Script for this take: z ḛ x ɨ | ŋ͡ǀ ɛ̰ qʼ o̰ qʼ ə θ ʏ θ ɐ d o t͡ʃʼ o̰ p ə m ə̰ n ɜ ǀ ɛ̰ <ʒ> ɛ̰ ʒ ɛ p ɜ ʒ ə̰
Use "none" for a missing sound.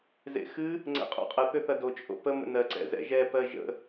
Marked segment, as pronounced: z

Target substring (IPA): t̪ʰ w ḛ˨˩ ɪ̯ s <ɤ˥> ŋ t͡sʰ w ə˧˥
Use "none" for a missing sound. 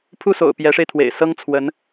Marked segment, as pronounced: ɤ˥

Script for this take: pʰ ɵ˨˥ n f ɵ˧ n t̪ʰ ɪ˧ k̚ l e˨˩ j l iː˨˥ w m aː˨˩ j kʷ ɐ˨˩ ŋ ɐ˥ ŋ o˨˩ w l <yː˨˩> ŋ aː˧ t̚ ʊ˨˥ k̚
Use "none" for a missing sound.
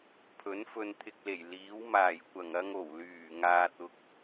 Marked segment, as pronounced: yː˨˩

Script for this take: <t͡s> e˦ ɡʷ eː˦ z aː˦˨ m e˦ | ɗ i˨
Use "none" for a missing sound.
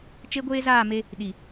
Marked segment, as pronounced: t͡ʃ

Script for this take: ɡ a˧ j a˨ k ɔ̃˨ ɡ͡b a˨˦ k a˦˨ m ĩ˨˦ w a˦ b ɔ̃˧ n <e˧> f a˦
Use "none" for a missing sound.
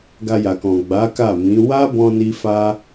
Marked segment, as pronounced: i˧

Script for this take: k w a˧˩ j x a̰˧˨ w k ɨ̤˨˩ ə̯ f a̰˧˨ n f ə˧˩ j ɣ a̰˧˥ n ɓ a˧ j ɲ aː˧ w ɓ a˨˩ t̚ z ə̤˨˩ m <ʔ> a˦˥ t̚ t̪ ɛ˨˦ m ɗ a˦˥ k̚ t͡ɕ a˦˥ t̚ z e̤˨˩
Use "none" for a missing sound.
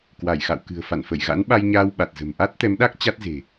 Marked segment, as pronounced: ʔ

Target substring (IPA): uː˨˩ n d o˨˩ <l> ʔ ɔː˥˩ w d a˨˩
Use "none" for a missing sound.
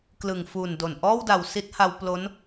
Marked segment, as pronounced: n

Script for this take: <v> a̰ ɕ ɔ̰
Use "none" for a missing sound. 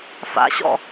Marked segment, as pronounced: f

